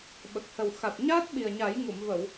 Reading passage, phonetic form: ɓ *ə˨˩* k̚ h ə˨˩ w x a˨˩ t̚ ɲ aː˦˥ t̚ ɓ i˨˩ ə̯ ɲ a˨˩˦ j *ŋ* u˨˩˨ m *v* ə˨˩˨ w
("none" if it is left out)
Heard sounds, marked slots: ə˨˩, ŋ, v

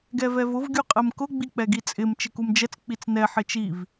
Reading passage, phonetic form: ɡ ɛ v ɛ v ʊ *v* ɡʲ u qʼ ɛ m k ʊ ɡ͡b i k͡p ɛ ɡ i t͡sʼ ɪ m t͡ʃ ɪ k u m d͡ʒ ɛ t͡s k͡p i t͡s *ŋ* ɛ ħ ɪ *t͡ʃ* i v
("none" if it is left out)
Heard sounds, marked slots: v, n, t͡ʃ

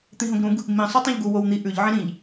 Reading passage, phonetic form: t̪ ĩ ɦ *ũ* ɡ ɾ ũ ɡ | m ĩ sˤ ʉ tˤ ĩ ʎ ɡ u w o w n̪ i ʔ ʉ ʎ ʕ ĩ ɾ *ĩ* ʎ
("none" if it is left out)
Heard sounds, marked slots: õ, ĩ

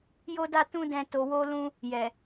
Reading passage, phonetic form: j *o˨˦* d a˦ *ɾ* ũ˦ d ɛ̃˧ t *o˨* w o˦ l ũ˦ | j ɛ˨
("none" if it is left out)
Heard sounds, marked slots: o˦, t, o˧

